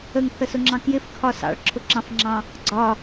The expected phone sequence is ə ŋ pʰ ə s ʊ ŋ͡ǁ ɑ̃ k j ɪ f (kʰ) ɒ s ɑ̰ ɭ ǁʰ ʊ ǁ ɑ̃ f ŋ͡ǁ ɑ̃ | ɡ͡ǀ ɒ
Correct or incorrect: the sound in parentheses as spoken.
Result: correct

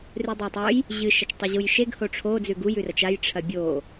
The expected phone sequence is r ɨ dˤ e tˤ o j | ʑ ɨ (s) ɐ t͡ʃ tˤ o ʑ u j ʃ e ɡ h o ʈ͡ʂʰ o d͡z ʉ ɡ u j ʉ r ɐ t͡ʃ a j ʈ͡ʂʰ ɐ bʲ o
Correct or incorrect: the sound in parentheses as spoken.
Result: incorrect: ʃ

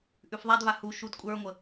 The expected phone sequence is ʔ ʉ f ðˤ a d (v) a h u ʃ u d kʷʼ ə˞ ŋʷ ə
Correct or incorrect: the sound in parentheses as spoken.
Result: correct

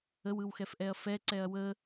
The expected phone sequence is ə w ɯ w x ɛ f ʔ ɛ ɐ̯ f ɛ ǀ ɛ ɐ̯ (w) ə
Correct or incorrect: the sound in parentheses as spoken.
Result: correct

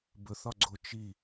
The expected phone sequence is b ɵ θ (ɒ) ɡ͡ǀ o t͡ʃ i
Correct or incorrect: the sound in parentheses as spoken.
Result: correct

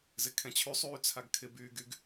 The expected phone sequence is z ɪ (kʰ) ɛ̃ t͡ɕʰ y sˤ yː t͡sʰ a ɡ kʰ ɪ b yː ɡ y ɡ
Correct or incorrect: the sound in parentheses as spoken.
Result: correct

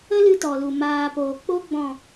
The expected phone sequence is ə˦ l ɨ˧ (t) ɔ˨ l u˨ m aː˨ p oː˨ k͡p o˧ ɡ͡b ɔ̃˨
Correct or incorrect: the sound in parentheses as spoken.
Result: correct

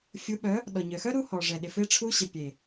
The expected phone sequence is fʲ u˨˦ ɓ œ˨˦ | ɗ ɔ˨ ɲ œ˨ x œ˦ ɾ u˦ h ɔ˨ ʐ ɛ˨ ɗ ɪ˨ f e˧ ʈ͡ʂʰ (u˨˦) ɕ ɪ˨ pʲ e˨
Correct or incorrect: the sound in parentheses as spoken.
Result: incorrect: u˧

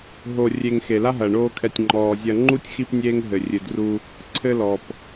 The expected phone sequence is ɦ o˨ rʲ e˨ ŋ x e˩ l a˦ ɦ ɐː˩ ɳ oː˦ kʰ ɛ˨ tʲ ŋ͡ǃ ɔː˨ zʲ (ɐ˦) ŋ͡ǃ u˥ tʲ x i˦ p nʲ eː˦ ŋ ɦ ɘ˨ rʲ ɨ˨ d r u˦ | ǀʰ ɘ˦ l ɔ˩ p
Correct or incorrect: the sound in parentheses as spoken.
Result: correct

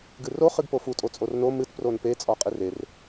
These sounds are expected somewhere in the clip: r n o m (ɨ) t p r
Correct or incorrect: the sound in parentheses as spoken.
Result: correct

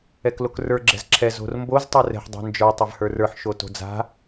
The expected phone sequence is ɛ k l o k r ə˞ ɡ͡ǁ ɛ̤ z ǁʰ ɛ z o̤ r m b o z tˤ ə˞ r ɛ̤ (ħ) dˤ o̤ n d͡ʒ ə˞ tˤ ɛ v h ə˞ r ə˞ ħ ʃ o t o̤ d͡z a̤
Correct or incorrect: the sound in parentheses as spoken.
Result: correct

